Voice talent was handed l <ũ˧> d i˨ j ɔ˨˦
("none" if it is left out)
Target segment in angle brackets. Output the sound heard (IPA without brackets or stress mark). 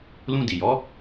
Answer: ũ˧